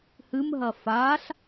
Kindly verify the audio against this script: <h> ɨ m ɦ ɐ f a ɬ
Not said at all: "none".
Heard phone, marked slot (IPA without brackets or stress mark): h